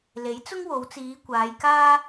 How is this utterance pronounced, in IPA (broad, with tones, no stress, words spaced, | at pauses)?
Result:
le˨˥jt͡sʊ˥ŋwo˨˧wt͡siː˨˧ kʷaː˨˧jkaː˥